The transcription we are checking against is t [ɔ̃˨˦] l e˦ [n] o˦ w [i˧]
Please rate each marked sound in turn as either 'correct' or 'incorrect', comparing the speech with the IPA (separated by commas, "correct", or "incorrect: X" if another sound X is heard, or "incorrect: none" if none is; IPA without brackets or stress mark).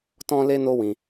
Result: incorrect: ɔ̃˦, correct, incorrect: ĩ˧